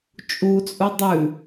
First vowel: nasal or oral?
oral